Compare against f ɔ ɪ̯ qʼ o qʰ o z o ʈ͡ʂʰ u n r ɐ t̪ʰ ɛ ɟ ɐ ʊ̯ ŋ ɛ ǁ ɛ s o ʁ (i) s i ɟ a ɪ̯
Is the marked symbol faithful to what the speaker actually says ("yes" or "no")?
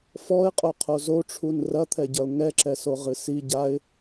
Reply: no